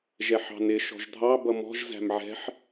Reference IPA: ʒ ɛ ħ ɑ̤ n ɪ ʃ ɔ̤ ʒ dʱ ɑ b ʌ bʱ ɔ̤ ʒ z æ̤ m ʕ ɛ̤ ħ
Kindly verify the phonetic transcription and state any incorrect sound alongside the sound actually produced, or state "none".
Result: bʱ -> m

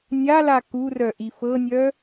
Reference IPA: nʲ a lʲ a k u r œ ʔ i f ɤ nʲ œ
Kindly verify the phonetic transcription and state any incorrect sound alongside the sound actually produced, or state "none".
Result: lʲ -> l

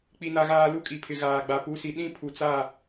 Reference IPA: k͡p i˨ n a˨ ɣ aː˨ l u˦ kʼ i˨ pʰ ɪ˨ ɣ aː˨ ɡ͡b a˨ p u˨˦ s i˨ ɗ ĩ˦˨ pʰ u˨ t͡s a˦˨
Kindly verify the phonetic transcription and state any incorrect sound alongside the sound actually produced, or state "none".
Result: none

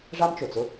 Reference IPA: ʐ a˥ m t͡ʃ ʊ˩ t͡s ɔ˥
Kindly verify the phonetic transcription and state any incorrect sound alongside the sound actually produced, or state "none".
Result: ɔ˥ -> ʊ˥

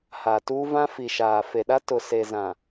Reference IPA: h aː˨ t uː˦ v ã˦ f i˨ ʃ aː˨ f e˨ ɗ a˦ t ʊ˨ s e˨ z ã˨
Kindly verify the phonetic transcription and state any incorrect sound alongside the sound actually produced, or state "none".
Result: none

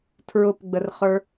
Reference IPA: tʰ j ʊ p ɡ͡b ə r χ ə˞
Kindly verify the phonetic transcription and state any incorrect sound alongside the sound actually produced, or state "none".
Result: j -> ɹ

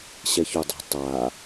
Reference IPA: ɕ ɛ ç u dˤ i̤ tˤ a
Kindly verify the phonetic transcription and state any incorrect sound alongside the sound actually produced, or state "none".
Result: none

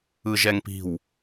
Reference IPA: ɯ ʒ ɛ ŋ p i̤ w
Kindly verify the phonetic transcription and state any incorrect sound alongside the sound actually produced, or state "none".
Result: none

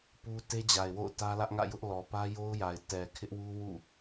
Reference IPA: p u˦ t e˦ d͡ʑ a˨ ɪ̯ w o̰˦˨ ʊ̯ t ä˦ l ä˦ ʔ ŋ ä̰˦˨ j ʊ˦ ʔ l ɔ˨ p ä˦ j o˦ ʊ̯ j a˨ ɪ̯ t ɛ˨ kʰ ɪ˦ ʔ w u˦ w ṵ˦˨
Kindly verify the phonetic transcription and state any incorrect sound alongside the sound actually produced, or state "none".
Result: none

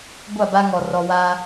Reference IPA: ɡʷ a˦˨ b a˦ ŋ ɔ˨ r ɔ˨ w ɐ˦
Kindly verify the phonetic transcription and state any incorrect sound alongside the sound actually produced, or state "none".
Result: ɐ˦ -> a˦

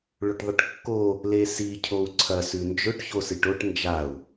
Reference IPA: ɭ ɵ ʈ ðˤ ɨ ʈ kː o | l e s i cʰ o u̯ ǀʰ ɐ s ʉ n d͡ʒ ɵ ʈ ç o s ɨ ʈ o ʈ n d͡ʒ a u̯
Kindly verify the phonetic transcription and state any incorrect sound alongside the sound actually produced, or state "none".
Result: none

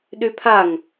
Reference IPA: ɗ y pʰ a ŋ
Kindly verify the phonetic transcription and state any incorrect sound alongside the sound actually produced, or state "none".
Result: none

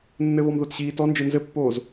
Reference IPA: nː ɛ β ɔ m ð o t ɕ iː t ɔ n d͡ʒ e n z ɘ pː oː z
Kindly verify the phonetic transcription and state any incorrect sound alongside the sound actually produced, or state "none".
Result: ɛ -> ɘ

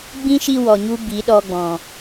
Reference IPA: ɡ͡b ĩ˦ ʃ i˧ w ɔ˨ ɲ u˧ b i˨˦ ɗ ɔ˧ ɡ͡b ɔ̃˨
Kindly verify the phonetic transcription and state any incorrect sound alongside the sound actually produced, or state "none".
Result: none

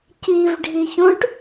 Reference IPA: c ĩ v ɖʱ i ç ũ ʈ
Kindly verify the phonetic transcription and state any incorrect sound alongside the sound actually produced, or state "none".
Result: ĩ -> i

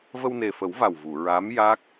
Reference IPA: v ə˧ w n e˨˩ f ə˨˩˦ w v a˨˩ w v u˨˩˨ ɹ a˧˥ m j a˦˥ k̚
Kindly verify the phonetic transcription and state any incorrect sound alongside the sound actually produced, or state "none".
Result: none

